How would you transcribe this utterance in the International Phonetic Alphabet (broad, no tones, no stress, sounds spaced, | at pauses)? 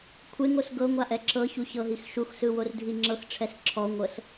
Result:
kʷʰ e ŋ o s ɡ ɤ ŋʷ a ʔ ɛ ǁ ɤ ç u ç ɤ ɦ i x ʃ u x s ɯ w o r dʱ i ŋ͡ǁ ɤ x ʈ͡ʂʰ ɛ s ǁʰ ɔ ŋʷ ɤ s